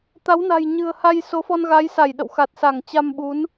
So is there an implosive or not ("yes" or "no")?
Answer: yes